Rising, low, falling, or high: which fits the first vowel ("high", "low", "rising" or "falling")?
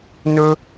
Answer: high